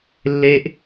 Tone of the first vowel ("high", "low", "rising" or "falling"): high